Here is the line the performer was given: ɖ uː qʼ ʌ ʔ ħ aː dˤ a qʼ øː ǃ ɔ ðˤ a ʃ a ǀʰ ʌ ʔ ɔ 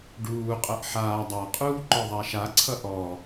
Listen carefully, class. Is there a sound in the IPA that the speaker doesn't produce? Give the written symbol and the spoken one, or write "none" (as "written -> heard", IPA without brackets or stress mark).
øː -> uː